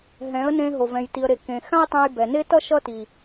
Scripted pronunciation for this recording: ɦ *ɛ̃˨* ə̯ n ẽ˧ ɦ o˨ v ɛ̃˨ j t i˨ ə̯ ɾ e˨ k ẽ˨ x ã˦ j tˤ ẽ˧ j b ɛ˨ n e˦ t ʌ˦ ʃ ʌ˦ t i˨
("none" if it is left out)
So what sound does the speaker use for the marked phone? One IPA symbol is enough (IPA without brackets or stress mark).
ɛ̃˨˦